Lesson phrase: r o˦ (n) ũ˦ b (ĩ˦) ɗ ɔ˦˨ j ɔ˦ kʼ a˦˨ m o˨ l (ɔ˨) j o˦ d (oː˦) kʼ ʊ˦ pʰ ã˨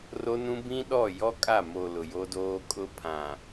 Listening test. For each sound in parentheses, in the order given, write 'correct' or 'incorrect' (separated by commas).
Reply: correct, correct, incorrect, correct